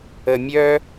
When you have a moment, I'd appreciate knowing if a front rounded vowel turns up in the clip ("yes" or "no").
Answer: yes